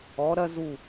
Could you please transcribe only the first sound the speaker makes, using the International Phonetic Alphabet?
ɔ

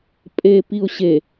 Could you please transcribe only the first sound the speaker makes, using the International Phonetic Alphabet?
pʼ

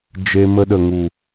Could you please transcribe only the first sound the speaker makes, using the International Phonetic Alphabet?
d͡ʒ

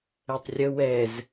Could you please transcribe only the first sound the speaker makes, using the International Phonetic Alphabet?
ɛ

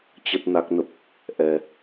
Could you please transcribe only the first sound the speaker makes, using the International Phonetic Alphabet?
t͡ɕ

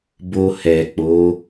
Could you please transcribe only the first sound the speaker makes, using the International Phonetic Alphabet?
b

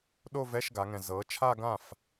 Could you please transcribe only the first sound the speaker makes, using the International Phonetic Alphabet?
ɗ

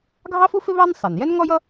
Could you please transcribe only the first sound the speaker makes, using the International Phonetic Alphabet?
ɡʱ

